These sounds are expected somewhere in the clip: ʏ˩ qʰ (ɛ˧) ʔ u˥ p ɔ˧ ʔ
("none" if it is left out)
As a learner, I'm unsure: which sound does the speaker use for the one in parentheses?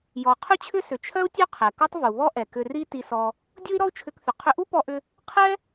ʏ˧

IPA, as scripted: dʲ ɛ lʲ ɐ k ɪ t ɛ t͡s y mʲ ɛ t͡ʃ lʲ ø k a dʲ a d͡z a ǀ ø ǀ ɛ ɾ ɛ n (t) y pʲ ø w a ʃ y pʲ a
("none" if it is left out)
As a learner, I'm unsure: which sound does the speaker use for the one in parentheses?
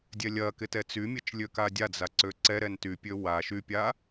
t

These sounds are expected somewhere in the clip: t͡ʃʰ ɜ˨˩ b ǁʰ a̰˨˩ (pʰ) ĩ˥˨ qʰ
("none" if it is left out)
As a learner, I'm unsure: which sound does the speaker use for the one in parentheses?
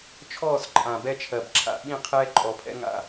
ɓ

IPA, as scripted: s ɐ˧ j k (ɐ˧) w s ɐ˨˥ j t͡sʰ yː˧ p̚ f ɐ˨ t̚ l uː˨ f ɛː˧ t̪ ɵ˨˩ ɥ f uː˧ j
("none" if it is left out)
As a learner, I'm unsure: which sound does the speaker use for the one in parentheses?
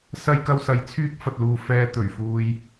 ɐ˧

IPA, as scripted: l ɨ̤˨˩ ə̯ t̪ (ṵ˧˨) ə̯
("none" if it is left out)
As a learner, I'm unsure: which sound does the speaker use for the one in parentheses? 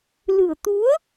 u˨˦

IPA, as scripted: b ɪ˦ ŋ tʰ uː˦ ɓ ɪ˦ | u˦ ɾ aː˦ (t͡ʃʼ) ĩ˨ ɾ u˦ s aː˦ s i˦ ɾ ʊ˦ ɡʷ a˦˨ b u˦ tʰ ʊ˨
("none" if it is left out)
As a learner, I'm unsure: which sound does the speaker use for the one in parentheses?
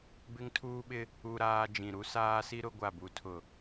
d͡ʒ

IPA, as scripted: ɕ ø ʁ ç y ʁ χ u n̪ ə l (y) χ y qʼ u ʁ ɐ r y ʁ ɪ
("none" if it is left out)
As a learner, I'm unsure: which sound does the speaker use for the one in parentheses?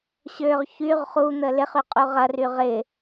ɪ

